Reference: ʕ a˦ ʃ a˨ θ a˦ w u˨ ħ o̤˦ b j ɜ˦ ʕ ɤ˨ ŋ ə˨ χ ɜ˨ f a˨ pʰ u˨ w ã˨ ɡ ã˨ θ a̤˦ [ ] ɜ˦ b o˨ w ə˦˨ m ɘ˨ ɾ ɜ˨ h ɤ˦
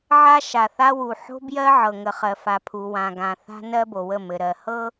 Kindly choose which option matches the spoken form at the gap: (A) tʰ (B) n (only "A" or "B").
B